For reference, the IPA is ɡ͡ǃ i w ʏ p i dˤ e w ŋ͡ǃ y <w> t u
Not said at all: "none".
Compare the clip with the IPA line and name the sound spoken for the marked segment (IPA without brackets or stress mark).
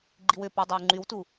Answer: w